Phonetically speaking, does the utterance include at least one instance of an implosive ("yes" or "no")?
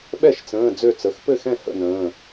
yes